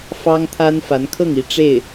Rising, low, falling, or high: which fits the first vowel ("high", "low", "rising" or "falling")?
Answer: high